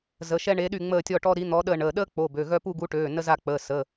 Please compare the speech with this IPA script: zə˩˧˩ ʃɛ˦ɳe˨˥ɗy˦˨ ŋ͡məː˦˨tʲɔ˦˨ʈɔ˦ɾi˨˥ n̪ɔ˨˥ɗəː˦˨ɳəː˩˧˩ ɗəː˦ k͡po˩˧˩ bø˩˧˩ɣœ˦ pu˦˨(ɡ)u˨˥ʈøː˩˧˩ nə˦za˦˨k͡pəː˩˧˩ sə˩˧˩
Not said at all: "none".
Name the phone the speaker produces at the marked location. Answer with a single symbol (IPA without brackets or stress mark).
ɡ